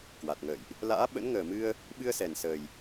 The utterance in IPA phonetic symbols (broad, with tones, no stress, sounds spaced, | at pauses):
k w a˨˩ t̚ ŋ ə̰ː˧˨ j ʔ | l a̰ː˧˥ ɓ ə̰˧˥ n ŋ əː˨˩ m ɨ˧ ə̯ | ɓ ɨ˧ ə̯ s ɛ˨˩ n s əː˨˩ j